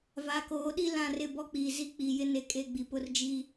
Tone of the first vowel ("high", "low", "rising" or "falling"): rising